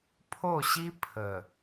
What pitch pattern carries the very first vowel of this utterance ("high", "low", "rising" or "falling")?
falling